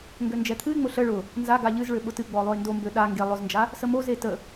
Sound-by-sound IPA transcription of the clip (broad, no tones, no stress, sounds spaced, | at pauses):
ŋ ɡ ø n d͡ʒ ɛ t̪ʰ ɨ ɪ̯ ŋ͡m ʊ ɬ ə ɭ ʊ | n z a ɡ a ʎ ɨ z ɭ ø ɓ ʊ t ɨ ɡ͡b ɔ lˠ o ɪ̯ n d o m b ø ɗ a ŋ ɡ e lˠ ʊ z n d͡ʒ a | s ə m o z e t ə